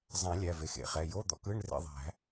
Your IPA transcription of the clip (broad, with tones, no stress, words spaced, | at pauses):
zˤæ̃˨˩˦ lʲæ˩˧˩ve˩˧˩xḛ˩˧˩χɛ˩˧˩ jo˧˥˧d̪ɔ̰˧˥˧kɯ˧˥˧ɳ rḛ˦˨ðˤæ̤˨˩˦